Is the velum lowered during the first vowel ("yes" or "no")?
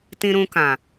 yes